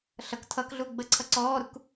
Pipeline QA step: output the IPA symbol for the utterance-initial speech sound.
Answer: ɬ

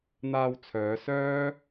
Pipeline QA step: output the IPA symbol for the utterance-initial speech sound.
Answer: n̪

